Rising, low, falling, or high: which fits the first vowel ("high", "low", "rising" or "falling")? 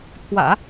low